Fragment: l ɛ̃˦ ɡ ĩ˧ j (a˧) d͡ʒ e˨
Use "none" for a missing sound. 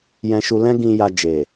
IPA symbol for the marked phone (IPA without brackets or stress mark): a˧